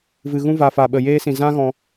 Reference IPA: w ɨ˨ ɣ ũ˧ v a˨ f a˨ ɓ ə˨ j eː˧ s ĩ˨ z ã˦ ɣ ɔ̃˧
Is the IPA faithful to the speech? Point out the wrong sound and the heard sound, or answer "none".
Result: w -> v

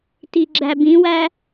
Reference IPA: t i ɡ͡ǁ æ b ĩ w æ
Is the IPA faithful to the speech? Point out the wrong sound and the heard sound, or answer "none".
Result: none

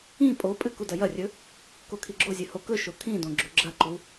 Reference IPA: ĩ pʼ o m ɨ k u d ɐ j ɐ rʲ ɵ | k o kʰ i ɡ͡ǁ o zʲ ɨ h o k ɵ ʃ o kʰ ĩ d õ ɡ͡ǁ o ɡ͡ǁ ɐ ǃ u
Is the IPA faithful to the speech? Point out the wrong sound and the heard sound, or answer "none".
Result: m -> pʼ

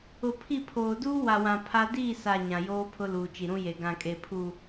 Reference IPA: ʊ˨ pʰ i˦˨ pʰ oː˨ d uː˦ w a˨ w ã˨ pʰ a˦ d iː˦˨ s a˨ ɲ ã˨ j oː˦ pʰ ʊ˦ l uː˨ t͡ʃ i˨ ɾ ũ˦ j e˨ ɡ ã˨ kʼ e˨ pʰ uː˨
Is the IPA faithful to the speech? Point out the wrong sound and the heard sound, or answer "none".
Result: none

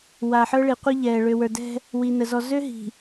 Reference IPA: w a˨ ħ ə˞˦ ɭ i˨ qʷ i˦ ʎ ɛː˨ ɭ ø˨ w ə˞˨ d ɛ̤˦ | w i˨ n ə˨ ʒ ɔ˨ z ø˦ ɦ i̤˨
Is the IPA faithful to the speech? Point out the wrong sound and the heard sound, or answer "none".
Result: ʒ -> z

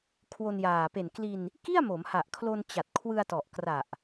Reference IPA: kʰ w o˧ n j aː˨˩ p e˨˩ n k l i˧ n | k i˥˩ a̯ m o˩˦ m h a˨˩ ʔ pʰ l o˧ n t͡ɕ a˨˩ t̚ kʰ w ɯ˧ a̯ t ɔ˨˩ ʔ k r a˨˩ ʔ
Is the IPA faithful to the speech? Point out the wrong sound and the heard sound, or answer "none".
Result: pʰ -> kʰ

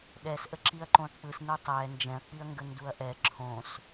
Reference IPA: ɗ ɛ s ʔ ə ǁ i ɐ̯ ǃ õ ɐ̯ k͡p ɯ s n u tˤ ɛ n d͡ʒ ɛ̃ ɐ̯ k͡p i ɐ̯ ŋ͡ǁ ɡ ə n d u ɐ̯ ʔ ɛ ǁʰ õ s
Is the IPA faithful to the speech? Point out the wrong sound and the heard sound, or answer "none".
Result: ŋ͡ǁ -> ŋ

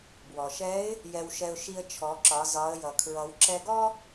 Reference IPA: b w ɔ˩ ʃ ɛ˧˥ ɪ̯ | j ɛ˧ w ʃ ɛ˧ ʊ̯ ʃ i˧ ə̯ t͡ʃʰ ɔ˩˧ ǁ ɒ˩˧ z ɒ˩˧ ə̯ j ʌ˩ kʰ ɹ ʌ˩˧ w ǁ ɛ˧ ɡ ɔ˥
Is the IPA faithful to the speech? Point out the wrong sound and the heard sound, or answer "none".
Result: none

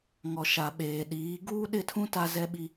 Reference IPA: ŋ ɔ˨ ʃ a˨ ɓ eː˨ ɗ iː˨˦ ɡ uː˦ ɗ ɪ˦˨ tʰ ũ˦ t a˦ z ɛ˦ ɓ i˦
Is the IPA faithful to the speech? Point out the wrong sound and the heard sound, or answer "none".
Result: none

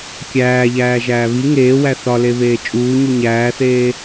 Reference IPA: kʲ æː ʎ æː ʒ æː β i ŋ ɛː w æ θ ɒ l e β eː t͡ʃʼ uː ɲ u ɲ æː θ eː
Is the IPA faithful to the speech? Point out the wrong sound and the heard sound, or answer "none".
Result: ɛː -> eː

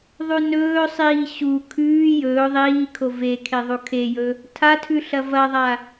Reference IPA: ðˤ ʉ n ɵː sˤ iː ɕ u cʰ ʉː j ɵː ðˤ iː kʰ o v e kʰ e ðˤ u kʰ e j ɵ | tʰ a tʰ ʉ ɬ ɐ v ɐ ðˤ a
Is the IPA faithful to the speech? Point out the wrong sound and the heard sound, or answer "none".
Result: cʰ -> kʰ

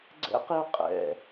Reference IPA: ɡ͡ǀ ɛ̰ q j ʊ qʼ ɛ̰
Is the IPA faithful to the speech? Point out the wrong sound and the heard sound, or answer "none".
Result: none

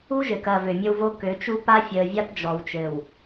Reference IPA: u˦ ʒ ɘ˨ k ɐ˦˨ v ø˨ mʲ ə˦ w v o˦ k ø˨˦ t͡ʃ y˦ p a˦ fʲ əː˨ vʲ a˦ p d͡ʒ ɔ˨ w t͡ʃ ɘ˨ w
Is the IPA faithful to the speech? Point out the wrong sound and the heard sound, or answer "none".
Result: y˦ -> u˦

